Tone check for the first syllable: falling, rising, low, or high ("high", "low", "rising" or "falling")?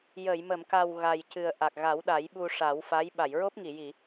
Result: low